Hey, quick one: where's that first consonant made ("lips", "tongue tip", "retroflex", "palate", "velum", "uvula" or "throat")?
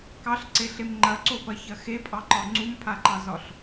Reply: velum